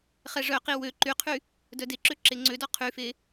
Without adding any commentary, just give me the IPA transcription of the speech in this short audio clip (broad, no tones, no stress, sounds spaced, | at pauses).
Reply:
χ ɛ ʐ œ q i w ø ǃ y qʰ y | d œ d e ǁ ø ǁ e ŋ͡ǀ ø d ɔ qʰ y f e